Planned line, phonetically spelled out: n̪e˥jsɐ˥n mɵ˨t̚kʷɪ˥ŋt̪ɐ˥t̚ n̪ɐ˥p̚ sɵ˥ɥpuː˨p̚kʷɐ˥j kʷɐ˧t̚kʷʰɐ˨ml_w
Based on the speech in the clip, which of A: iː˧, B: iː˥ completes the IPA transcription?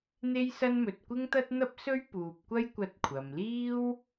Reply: B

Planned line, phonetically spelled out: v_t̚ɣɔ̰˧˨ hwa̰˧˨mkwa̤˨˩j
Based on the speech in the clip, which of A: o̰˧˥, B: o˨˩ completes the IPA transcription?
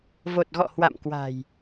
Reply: B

